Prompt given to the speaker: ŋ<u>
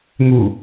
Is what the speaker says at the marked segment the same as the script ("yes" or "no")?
yes